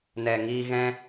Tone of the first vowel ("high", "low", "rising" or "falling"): low